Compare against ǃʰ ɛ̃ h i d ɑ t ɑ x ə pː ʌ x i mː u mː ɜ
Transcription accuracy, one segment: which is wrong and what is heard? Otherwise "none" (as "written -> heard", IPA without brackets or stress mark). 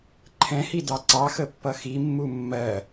t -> ǀ